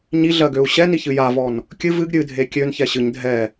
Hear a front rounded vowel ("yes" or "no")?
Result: yes